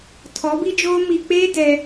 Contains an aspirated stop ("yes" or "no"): yes